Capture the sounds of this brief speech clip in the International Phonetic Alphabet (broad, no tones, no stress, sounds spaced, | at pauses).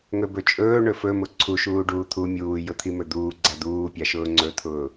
ŋ ɵ b ɵ t͡ʃʼ ɵː ɳ ɵ f ɵ m ʊ ǀʰ u ʃ uː ɖ uː t̪ʰ u mʲ uː j ʊ t̪ʰ i m ɵ d̪ uː ɡ͡ǀ a d̪ uː pʲ a ʃ ʊː ŋ͡ǀ ɵ t̪ʰ ʊː